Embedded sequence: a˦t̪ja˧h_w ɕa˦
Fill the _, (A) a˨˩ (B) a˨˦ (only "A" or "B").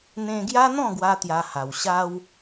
A